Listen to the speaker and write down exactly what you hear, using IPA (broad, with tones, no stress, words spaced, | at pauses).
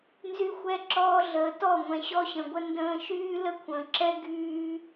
nzy˦xʷɛ˦ǁɔː˦ ɮəː˨tɔ˦˨ŋʷɛ̃˨ ɕɔ˦ɕə̃˨ɡʷə˦ ndə̃ː˦ ʃyː˦lə˦kʷʰə̃ː˨ǁɛ˦ ɡyː˦